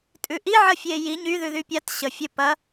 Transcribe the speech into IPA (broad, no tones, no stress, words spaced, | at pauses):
tʼʉʔiʕə fʲeji ɲyðʉ ðypʲat ɕə fʲɘ pɐ